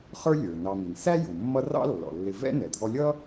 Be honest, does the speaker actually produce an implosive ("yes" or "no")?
no